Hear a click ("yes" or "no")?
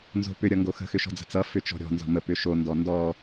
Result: no